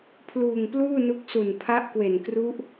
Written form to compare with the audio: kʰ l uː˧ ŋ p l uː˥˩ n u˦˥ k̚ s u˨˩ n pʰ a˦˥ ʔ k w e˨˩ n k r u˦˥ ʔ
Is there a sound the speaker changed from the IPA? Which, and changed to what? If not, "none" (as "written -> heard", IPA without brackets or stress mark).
kʰ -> pʰ